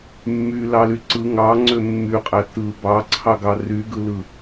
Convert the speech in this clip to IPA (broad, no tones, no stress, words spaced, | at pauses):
mːylɑly ǀɯ ŋɑŋ͡ǀø mːyqʼæ tɯ bɑǀʰɑɡɑ ryɡɯlɯ